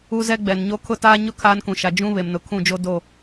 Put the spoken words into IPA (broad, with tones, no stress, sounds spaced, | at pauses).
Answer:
u˦ z ɛ˦ ɡ͡b ɛ˨ n ɲ o˦ kʰ ʊ˦ t aː˦ ɲ ʊ˦ kʰ aː˦ n k ũ˨ ʃ a˨ d͡ʒ ũ˦ β e˨ m n ʊ˨ kʰ ũ˦˨ d͡ʒ o˦ d o˦˨